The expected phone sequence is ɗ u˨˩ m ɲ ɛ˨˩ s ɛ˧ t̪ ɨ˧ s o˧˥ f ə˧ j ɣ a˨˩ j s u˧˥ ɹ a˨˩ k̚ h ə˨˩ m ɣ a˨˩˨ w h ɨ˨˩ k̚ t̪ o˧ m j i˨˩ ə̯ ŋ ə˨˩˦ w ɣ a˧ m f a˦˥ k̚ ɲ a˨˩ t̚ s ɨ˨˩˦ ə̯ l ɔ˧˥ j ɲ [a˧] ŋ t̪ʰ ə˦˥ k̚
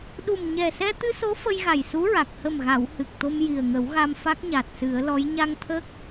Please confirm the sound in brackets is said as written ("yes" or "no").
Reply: yes